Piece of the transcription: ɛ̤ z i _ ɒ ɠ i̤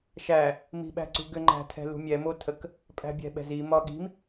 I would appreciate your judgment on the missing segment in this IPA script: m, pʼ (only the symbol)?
m